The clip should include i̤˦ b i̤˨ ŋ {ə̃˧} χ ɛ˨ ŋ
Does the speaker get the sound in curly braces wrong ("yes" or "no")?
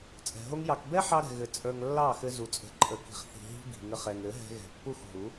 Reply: yes